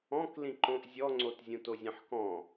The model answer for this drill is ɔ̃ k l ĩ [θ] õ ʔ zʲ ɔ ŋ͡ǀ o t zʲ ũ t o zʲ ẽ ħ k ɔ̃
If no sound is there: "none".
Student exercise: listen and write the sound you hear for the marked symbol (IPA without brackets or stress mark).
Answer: ǃ